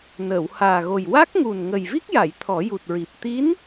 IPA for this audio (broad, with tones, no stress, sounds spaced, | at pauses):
n əː˨˩˨ w h aː˨˩ ɣ o˨˩ j w a˦˥ k̚ ŋ u˨˩ n ŋ ə˨˩ j v i˦˥ k̚ j a˨˩˨ j t̪ʰ ɔ˨˩˦ j u˨˩ t̚ ɹ i˨˩ p̚ t̪ i˧˥ n